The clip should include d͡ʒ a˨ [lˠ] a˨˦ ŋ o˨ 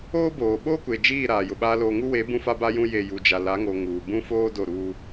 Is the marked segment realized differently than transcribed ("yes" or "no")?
yes